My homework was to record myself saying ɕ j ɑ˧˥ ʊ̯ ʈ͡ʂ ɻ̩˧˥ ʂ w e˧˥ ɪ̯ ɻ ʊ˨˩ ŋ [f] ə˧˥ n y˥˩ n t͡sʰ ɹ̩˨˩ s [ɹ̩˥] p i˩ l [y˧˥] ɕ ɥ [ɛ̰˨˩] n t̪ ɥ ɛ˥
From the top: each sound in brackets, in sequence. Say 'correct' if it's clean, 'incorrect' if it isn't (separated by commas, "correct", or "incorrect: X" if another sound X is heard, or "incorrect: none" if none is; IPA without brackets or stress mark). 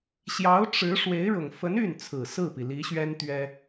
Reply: correct, incorrect: ɹ̩˥˩, incorrect: i˧˥, incorrect: ɛ˥